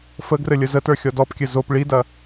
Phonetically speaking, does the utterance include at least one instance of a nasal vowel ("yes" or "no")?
no